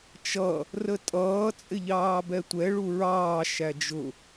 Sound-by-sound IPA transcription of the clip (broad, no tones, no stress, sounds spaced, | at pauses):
t͡ʃ ʌ | r ə tʼ ʌː t͡sʼ ɪ ʎ ɑː b ɛ tʷ ɛ ɭ u ɹ ɑː ʃ æ d͡ʒ ʊ